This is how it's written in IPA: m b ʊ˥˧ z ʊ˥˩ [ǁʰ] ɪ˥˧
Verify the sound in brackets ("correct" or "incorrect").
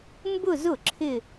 correct